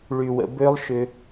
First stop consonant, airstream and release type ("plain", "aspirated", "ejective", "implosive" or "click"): plain